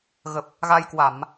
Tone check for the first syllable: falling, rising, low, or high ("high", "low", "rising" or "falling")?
low